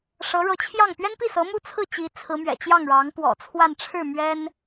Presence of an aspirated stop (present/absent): present